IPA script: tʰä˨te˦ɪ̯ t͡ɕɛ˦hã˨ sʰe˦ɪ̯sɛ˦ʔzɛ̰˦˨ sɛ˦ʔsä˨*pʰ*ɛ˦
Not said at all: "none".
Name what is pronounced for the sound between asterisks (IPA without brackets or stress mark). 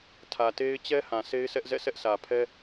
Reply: pʰ